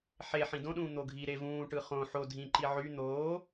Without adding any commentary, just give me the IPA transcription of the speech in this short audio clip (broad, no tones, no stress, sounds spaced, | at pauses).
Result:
ħ e ħ ĩ d õ ɗ ũː n̪ o ɡʱ i ɾ e v ũː ʈ ɯ χ õ ħ o dʱ ĩ ǃ i ʕ y n̪ oː